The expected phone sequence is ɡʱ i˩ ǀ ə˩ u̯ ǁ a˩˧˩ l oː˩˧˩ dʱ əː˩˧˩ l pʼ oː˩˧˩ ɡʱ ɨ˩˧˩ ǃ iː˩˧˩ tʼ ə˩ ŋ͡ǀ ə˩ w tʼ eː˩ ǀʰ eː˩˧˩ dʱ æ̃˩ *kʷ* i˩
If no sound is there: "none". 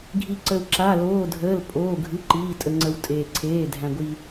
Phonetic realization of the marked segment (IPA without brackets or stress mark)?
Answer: ɡʷ